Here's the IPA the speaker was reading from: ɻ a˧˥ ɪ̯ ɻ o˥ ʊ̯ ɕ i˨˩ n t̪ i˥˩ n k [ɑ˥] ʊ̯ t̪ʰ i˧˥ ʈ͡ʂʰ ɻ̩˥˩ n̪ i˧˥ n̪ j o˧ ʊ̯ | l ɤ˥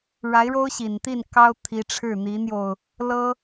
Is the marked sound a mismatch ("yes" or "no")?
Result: no